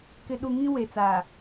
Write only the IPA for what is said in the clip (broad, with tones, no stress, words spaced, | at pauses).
kɪ˨ɗu˨ ŋĩ˦ we˨t͡saː˨